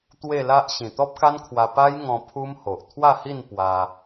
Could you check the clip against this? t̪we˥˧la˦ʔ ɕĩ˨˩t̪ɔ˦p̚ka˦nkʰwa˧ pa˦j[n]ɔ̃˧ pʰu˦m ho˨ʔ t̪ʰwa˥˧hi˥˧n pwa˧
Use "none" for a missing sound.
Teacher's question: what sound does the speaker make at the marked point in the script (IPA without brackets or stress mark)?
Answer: ŋ